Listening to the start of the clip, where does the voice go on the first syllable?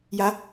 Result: rising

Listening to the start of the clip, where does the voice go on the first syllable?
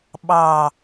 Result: falling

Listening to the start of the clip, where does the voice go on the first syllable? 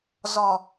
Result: low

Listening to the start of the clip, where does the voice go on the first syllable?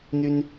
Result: high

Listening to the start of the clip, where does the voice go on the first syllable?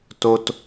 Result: low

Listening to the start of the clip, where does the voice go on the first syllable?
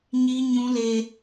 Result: high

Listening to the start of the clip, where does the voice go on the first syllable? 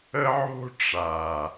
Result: high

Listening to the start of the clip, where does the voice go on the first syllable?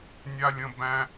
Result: high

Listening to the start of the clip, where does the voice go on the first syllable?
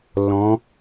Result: rising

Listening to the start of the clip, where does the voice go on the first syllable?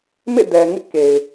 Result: falling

